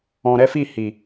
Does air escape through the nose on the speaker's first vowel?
yes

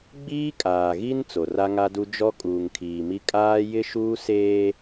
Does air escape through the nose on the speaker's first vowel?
no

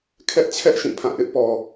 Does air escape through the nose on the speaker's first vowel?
no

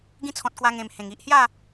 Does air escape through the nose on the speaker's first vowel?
yes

